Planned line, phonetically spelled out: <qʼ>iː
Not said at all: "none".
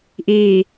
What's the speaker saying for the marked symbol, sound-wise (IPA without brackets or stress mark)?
ʔ